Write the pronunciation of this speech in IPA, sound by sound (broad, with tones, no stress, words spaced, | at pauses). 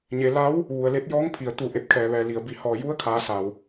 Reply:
ɲe˩˧ la˧˥w | ʋu˩ə̯le˧t̚ jɔː˧˥ŋpʰi˩ə̯ t̪u˧˩ ʔe˧˩p̚kʰɛː˩ʋɛː˩ li˩ə̯bi˧˩hɔː˧˩ ju˧˥ə̯kʰaː˩˧ sa˩w